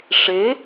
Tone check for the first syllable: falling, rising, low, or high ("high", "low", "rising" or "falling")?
rising